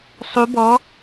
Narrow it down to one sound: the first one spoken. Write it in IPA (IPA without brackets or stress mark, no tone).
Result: sˤ